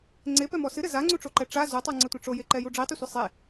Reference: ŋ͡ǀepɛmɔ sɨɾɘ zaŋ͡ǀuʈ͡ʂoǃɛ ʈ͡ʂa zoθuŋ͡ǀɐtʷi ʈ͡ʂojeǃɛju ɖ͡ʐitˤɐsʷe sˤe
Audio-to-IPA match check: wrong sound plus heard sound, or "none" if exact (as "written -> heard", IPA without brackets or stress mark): θ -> tˤ